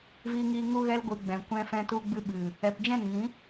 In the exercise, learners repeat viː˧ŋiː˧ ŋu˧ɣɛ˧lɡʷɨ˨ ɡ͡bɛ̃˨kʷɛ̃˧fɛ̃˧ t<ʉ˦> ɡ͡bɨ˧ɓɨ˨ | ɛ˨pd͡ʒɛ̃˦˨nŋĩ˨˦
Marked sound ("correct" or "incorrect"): incorrect